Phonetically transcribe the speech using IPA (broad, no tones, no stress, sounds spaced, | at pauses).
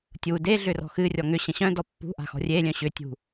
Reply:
tʲ u d e ɮ ʏ r ɔ̤ x ɨ rʲ ɔ ŋ ʏ ɕ ə̃ ɕ œ̃ d ɔ pː ṳ ʔ a̤ x ɔ̤ rʲ e lʲ œ̃ ɕ ʏ tʲ ṳ